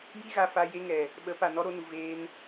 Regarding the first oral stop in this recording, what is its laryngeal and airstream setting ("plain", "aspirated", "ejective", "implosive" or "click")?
implosive